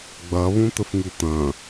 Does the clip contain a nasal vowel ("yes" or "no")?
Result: yes